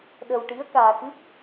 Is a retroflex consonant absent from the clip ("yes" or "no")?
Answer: no